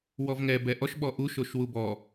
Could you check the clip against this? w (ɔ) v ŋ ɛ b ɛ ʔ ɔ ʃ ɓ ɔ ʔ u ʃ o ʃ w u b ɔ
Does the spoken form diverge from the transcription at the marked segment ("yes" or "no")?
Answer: no